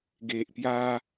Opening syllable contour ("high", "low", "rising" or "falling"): low